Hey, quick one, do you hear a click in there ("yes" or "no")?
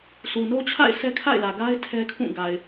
no